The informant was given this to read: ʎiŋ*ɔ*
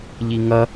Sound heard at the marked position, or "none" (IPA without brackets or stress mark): ʌ